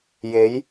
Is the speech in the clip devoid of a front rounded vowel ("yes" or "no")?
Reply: yes